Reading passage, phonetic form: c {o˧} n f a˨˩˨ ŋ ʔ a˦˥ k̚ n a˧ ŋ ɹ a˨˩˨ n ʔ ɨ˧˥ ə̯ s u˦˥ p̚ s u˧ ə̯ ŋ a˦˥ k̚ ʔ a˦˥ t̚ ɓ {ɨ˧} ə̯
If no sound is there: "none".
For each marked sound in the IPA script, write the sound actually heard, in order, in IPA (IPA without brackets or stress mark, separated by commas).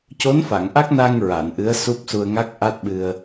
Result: o˧˥, ɨ˧